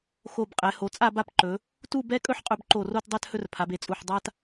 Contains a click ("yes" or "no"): yes